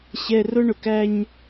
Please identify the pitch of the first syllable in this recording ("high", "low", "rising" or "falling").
high